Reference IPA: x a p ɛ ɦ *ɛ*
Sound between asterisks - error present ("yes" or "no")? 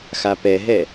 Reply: no